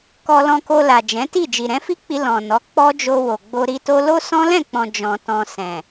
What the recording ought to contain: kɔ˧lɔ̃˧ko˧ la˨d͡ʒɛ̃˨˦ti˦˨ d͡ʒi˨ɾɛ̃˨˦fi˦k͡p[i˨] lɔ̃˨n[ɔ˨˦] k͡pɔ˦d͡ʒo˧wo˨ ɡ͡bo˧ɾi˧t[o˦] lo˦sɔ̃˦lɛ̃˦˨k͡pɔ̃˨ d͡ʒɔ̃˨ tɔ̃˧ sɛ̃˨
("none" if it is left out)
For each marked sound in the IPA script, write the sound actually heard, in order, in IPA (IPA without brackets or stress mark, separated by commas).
i˧, ɔ˨˦, o˦